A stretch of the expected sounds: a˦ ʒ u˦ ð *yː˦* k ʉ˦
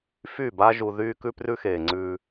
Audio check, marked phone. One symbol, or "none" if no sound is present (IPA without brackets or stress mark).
yː˦